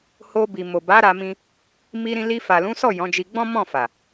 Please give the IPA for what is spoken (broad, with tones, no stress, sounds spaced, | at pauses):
h o˧ b i˨ m o˨ b a˨˦ ɾ a˧ m ĩ˧ | m i˧ ɾ ĩ˧ l i˧ f a˨ l ũ˨˦ s ɔ˦˨ j ɔ̃˨˦ d͡ʒ i˧ ɡ͡b ɔ̃˦ m ɔ̃˦˨ f a˨